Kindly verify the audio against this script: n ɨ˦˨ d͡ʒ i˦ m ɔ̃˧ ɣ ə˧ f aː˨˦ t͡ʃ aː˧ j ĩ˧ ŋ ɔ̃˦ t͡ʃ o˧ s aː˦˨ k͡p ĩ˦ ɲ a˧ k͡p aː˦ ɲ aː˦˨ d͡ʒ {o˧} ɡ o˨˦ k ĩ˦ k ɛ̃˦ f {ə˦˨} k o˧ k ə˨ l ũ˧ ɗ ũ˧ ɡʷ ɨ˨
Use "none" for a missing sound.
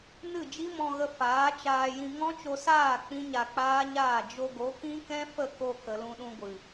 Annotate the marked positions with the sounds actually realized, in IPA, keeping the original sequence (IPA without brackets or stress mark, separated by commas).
o˧, ə˦˨